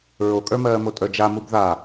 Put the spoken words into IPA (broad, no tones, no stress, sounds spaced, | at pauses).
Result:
ɹ o kʼ ə˞ m ɜː m o tʼ ə˞ d͡ʒ a m u b ð a